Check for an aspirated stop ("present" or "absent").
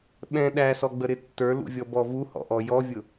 absent